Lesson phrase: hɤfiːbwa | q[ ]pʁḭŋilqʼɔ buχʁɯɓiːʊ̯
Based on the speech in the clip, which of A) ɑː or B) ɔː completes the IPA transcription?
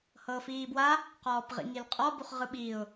B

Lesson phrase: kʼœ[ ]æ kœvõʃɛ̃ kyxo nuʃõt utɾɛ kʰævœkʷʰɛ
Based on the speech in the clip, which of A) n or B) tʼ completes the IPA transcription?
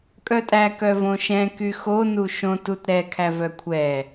B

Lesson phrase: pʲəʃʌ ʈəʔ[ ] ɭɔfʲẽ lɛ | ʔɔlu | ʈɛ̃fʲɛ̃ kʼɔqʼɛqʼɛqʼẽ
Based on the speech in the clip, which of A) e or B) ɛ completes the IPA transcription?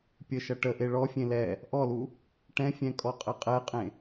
A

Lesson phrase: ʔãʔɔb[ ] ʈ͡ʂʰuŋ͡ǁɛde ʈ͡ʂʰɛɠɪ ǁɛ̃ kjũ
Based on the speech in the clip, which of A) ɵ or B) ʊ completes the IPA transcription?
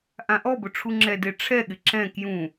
B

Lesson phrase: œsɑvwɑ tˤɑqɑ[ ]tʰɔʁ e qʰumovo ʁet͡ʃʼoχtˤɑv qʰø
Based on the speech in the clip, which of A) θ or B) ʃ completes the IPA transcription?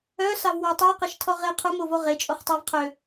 B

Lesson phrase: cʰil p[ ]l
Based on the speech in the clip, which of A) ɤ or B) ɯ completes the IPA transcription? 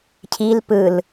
B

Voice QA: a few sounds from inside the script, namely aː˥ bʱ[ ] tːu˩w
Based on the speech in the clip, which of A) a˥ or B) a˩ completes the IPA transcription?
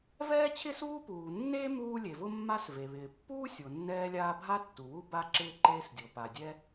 A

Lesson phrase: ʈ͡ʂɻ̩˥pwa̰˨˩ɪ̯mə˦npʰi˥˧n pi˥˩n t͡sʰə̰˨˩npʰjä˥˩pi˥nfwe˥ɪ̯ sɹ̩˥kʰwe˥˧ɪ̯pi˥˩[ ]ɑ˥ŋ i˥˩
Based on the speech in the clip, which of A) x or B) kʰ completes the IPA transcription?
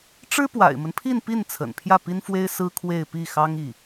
A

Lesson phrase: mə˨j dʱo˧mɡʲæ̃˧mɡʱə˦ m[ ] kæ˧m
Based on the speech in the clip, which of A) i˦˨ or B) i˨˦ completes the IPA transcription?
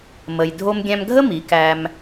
B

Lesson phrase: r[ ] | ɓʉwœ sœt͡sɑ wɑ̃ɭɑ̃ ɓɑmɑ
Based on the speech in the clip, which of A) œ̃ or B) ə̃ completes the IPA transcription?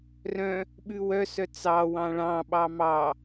A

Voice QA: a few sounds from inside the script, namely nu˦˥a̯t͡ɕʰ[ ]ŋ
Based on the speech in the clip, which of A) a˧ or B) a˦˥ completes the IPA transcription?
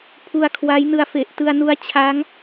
B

